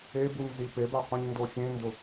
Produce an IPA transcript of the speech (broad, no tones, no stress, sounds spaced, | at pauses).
e b u ɲ z i p e b a qʷ ĩ ɲ n d o xʲ ẽ n d ʊ